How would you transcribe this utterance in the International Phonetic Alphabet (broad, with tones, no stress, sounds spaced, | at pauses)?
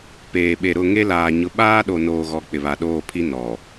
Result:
p eː˨ ɓ e˨ ɾ ʊ˦˨ ŋ e˦ l aː˨ ɲ ʊ˨ ɓ aː˦ ɗ o˨ n oː˨ ɣ ɔ˨ k͡p ɪ˨ β a˨ ɗ oː˦˨ pʰ i˦ n ɔ˨